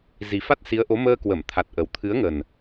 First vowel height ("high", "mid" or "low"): high